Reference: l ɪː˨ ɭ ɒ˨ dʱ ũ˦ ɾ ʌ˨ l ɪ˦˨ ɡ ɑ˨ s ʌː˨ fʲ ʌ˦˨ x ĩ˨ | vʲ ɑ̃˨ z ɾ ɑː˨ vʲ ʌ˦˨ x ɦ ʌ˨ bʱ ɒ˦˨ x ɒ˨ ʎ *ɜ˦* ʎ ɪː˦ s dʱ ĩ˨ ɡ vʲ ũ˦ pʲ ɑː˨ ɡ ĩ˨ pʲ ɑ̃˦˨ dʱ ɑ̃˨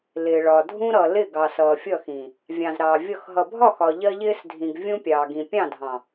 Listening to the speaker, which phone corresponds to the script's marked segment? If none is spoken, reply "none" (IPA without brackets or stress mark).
ɜ˦